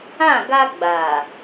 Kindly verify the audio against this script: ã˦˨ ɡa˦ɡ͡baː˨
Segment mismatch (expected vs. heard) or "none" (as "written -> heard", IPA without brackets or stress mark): none